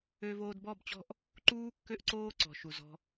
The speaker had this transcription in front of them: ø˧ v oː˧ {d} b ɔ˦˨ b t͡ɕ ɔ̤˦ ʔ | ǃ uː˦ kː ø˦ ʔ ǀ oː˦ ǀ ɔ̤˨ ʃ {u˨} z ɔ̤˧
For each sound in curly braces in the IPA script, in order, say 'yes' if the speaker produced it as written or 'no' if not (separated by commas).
yes, yes